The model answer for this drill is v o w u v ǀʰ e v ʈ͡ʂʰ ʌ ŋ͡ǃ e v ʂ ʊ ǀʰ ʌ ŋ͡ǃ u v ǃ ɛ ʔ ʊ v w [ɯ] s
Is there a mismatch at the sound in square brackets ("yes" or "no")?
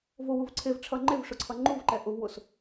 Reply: yes